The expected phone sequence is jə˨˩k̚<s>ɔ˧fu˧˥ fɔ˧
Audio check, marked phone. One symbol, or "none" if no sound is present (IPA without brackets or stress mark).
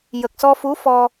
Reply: s